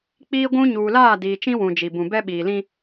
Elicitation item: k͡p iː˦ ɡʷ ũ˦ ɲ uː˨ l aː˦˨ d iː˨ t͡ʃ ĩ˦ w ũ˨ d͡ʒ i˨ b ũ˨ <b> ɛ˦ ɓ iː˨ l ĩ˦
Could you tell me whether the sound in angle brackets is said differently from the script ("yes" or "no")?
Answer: no